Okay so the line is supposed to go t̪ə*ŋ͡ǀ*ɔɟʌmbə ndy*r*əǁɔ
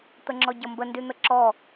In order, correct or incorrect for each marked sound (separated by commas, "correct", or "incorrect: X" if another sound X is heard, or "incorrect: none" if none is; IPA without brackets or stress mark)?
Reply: incorrect: ŋ͡ǁ, incorrect: n̪